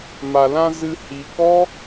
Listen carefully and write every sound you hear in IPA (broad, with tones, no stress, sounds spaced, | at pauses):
m a˨ l ã˧ z ɨ˧ h i˨ k ɔ˦